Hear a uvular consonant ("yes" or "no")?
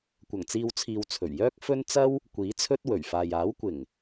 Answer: no